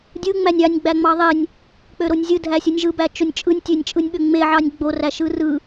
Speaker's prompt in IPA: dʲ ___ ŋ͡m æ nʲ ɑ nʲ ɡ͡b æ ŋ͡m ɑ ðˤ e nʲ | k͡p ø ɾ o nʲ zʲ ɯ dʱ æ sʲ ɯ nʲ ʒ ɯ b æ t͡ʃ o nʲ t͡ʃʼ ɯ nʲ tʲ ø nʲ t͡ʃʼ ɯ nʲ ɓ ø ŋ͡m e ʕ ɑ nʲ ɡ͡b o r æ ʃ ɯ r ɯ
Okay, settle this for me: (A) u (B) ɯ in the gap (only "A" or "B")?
B